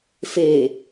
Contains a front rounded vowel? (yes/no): no